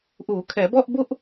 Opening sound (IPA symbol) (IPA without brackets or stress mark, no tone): ʔ